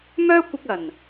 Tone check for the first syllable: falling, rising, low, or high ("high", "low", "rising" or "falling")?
high